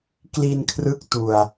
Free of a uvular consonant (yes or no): yes